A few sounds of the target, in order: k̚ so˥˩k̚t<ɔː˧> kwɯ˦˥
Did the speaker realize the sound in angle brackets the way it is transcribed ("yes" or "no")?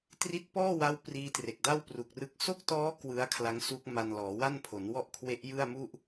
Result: no